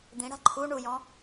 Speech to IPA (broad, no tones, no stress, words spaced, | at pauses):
d̪ĩɽa̤ ǃʰu ɳujɔ̃